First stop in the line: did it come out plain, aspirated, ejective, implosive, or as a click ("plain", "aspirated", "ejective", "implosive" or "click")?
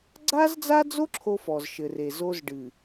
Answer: click